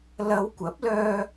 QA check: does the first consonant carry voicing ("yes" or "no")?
yes